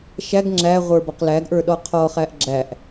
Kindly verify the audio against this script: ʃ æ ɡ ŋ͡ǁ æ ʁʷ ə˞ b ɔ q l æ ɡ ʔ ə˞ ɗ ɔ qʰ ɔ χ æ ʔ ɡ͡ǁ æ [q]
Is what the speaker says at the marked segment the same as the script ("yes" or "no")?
no